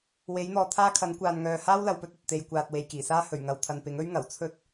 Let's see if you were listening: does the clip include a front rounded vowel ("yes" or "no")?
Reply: yes